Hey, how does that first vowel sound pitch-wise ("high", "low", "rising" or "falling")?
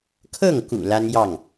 falling